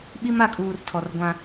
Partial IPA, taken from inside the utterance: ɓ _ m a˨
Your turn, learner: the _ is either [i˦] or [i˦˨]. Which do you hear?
i˦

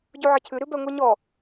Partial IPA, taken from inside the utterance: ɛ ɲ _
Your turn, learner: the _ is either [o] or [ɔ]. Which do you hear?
ɔ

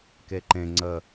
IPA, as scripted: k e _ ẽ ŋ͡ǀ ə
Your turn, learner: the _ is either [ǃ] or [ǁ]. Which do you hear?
ǃ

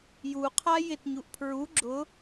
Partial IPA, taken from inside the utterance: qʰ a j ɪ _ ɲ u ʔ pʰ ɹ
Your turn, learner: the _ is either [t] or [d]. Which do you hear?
t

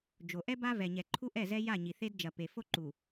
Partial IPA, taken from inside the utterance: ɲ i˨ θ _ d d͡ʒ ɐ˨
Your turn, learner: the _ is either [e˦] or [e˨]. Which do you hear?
e˦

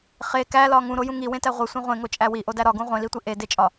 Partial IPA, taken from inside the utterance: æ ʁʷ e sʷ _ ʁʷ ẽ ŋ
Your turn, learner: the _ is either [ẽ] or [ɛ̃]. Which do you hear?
ẽ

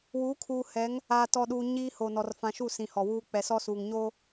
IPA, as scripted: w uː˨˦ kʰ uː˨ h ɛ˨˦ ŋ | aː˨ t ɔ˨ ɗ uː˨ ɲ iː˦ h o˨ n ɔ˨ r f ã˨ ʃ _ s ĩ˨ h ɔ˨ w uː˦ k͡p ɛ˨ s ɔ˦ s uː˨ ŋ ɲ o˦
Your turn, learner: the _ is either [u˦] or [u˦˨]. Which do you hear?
u˦˨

